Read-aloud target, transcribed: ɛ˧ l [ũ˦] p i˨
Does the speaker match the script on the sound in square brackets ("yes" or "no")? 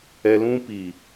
yes